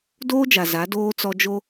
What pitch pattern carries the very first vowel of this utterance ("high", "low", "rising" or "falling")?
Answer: high